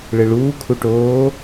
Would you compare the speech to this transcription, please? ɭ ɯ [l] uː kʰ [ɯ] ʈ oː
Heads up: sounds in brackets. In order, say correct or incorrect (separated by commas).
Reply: incorrect, incorrect